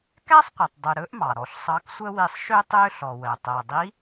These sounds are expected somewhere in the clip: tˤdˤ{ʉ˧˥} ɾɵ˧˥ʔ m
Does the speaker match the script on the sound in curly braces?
no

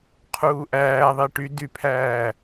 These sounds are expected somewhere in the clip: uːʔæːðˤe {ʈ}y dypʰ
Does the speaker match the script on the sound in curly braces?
yes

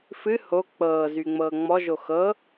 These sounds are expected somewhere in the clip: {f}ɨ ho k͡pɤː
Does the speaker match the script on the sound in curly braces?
yes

